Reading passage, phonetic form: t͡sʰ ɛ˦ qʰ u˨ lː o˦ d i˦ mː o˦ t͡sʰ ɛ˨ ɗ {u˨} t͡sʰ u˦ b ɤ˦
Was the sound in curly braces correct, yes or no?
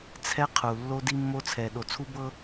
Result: no